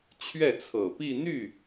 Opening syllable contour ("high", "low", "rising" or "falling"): falling